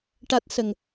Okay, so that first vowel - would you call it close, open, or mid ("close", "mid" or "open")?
open